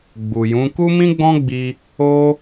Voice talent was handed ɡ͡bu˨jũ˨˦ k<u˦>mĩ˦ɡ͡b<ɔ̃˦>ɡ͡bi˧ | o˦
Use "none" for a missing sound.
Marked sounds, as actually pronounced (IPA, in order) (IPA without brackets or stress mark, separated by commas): u˦, ɔ̃˦